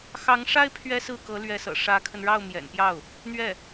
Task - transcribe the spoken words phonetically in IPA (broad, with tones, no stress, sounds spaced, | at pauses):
x ɑ˧˥ ŋ ʂ a˥ ɪ̯ pʰ ɥ ɛ˥ s ɹ̩˥˩ k ɤ˧˥ l ɥ ɛ˧˥ s ɤ̰˨˩ ʂ ä˧˥ kʰ ə˧ n ɻ ɑ˥˩ ʊ̯ m j ɛ̰˨˩ n p j ɑ˥˩ ʊ̯ | n̪ ɥ ɛ˥˩